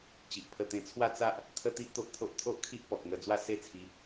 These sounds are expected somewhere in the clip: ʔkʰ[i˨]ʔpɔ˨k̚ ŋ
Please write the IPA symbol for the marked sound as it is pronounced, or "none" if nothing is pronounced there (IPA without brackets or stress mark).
i˦